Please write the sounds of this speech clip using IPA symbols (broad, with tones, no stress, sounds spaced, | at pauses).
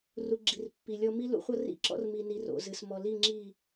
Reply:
r u˨ ɡ͡ǁ i˨ r pː i˨ lʲ ɔ˦ m i˦ l ṵ˦ χʷ ʌ˦ r ḭ˦ ǁ ɔ̰˦ r m i˨ n i˨ r o̰˨ z ɨ˨ s m ɔ˨ l i˦˨ ŋ͡ǁ i˦˨